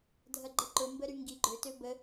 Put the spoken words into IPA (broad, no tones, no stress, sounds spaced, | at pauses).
dʱ ɐ ɡ͡ǃ ə ǃ ʊ m b ə ɾ y ŋ ɡ i ɡ͡ǃ ø t ø b ə